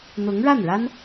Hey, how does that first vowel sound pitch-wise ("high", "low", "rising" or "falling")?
rising